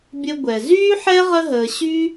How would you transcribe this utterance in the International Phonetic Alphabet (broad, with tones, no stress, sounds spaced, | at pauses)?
bʲ ə˧ ɡʷ ɛ˩ z yː˥ ħ ɛ˥ ʁ ə˥ ɦ əː˧ ɕ y˥